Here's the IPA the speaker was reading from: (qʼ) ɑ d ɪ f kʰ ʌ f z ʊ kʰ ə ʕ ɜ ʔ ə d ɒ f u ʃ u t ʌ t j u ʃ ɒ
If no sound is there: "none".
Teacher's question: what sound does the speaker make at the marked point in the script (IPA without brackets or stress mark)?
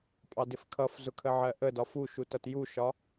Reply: pʼ